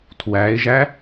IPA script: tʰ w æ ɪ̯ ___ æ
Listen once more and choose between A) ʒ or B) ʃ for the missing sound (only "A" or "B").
A